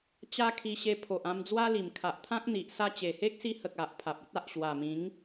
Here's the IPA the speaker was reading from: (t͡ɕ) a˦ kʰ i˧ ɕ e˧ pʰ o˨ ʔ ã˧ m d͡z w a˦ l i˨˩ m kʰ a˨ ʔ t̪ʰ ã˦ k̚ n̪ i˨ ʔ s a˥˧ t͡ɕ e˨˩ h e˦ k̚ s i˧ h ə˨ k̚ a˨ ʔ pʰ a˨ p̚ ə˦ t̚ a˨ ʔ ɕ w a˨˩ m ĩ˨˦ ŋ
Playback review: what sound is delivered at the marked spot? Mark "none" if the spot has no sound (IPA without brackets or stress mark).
t͡ɕ